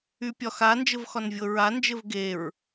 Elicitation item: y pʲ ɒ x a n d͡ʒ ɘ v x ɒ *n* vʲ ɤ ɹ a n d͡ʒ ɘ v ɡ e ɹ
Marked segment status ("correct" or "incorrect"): correct